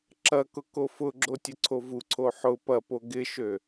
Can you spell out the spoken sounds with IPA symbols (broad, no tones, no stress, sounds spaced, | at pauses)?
ǁ ɐ k ʊ k o f ʊ ɡ͡ǁ o tʲ ʊ ǀʰ o v u ǀʰ o ħ ʊ p ɐ p o ɡ ɪ ʃ ø